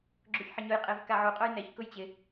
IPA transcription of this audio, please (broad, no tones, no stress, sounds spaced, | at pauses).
ɡ͡ǁ o ç ħ ɪ ɲ ʊ j qʼ e v k a ʕ u qʼ o j n ɛ ç k ʊ j t͡ɕ ɪ